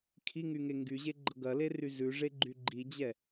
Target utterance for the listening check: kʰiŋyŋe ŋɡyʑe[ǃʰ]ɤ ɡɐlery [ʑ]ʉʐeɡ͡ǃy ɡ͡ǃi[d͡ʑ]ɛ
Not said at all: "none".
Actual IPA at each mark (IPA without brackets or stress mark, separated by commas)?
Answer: ɡ͡ǃ, z, d͡ʑ